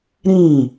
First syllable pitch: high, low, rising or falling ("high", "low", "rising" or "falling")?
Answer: falling